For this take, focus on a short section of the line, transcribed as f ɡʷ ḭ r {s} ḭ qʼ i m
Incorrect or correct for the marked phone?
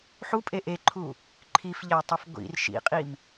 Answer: incorrect: ʃ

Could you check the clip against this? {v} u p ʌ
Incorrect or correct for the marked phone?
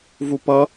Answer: correct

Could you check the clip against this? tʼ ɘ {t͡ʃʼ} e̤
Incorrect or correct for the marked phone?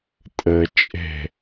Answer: correct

